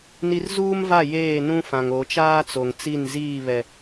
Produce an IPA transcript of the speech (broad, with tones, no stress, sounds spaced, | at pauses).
n i˦ r z uː˦ m v a˦˨ j eː˦˨ n ũ˦ f ã˨ ŋ o˨˦ t͡ʃ aː˦ t͡s o˨ ŋ t͡s i˦˨ n z iː˦˨ β ɛ˨